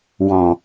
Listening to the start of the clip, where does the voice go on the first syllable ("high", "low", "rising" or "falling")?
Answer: low